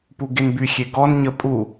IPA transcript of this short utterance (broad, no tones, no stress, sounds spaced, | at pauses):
p u ɡ e n b y xʲ e ɡ ɔ n ɲ ə pʼ u